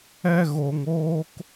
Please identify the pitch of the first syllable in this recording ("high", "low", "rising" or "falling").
high